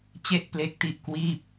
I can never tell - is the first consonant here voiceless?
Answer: yes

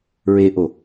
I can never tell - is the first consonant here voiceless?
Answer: no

